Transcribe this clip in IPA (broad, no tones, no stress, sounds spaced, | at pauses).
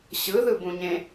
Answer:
ɕ ɯ ð ɯ b ũ ɲ ẽ